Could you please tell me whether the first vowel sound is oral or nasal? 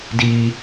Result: oral